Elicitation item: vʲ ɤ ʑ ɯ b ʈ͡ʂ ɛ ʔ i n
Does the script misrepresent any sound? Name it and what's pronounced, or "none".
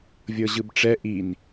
none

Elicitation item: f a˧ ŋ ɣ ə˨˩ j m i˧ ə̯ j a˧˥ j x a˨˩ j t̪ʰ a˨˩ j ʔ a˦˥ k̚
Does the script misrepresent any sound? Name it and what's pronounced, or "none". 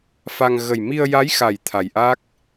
none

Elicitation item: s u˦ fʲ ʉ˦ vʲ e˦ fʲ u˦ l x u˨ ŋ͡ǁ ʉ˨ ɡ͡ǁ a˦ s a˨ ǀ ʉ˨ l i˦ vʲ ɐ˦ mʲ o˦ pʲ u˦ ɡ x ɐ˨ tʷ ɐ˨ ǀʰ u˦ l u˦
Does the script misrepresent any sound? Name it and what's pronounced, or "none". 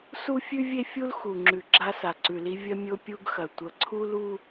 none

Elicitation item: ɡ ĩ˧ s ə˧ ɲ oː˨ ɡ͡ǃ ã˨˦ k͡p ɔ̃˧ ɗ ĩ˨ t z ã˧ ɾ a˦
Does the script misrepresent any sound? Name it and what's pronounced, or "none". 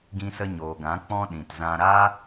ɡ͡ǃ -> ɡ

